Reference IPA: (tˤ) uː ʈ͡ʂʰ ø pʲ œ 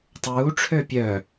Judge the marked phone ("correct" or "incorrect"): correct